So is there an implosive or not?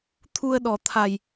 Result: yes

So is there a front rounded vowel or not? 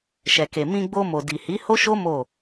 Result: no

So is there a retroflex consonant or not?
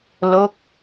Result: no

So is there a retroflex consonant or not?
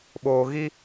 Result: no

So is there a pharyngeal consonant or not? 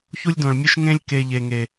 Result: no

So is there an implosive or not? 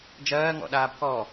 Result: yes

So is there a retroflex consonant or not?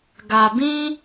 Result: no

